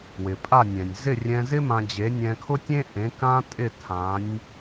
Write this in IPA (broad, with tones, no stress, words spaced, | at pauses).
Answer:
wɪ˩pʼa˥˩nʲɛ̃˩nʲ zɪ˥˩rʲɛ̃˧zɪ˥ mã˧d͡ʑe˩˥ nʲɛ̃˧kʰʊ˥ tʲẽ˥ʔẽ˩˥ kã˥tʼɪ˥˩ tʰã˩˥nʲ